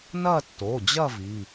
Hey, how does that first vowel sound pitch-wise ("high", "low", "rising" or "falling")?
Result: falling